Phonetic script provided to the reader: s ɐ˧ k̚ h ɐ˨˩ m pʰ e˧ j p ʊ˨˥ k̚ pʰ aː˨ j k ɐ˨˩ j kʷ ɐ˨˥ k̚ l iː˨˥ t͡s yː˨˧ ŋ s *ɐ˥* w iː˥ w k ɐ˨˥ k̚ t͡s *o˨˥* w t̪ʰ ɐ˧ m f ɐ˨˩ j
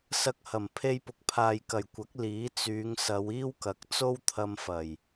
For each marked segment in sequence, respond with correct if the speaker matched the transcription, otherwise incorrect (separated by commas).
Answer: incorrect, incorrect